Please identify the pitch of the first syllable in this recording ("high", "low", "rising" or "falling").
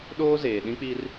high